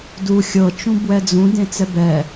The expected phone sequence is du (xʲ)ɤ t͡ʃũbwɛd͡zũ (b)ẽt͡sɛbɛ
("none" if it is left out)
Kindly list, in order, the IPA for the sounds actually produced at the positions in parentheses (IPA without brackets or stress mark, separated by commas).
xʲ, d